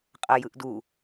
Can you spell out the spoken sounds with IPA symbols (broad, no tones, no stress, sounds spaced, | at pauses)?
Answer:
qʼ ɐ j ɯ ʔ d u